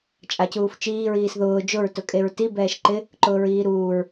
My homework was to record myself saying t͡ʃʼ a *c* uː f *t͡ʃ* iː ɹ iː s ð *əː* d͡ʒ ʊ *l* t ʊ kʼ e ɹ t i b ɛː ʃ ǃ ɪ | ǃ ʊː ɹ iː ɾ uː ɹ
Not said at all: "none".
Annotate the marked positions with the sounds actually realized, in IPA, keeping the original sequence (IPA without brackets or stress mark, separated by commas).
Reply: c, t͡ʃ, ʊː, ɹ